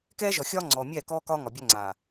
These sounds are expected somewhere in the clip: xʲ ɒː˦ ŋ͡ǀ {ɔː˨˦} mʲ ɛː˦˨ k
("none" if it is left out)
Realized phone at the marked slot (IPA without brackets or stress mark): ɔː˨